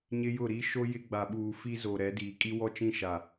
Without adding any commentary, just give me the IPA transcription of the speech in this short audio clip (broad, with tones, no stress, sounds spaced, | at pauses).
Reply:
ɲ ɪ˦ j ʊ˦˨ ɾ i˦ ʃ o˦ j ɪ˦ ɡ͡b a˨ ɓ uː˨ f i˦ z o˨ ɾ ɛ˨˦ d iː˨ kʼ i˦ w ɔ˦ t͡ʃ ĩ˦˨ ʃ a˨